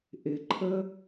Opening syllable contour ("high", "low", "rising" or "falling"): low